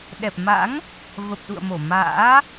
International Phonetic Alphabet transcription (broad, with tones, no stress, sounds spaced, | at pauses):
ɗ ɛ˨˩ p̚ m a̰˧˥ ŋ | v ə˨˩ p̚ ɗ ṵ˧˨ ə̯ m o˧˩ m a̰ː˧˥